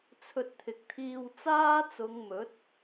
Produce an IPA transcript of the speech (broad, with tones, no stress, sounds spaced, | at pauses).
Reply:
t͡sʰ ɵ˧ t̚ t̪ʰ ɪ˨ k̚ t̪ʰ iː˧ w t͡s aː˥ t͡s ʊ˨˧ ŋ m ɵ˨˥ t̚